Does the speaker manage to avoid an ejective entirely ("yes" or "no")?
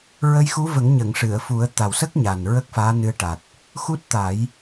yes